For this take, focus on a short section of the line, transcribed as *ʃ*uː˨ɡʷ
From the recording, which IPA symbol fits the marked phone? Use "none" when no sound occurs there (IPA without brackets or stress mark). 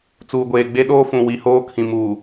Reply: t͡s